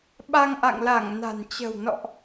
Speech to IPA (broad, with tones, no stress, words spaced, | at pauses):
ɓa˧ŋʔa̰˧˨ŋla˧˩ŋ na̤˨˩nt͡ɕə̤˨˩w nɔ̰˧˨ʔ